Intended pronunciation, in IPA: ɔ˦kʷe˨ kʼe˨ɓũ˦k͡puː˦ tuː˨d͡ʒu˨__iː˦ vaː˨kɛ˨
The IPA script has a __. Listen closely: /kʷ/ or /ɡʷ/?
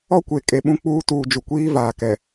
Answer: kʷ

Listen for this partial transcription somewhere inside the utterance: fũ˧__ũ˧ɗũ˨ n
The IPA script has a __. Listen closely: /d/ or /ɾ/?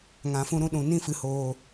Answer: ɾ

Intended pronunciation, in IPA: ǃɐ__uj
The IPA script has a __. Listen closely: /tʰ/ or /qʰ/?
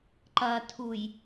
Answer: tʰ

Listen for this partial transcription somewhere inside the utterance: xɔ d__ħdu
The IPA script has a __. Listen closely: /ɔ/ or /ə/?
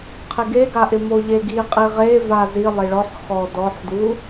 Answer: ɔ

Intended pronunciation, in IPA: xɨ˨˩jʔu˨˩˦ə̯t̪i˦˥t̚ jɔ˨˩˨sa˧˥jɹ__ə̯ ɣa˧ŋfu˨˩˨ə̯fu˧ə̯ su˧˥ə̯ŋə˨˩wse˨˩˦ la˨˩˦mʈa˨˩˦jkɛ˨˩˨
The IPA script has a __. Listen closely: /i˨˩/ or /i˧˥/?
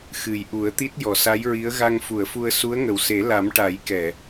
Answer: i˧˥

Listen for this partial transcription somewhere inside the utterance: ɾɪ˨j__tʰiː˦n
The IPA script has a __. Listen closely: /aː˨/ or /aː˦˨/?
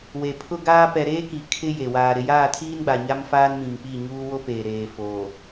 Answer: aː˦˨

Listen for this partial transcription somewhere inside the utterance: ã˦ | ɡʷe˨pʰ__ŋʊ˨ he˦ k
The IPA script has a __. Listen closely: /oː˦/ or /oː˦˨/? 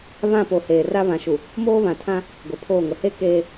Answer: oː˦˨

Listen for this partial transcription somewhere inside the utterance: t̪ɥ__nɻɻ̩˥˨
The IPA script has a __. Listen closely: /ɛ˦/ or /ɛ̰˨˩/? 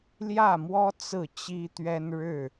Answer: ɛ˦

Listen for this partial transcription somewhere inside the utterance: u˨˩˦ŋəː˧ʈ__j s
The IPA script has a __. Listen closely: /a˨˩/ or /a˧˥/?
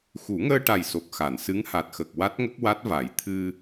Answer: a˨˩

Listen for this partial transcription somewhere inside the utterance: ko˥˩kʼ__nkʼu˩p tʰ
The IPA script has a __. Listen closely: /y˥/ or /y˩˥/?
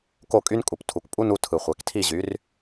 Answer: y˥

